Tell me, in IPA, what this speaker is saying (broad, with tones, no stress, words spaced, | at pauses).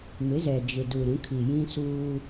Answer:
mɪ˨˦zɛ˨d͡ʒɪ˨du˨ ɾũ˨˦kʰi˨ jĩ˦suː˦